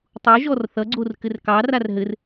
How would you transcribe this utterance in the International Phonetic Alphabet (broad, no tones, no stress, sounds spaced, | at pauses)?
tˤ u ʒ ɔ r θ ʌ ɡ͡ǀ o r k ɘ r k ɑ r a r ɦ ɘ r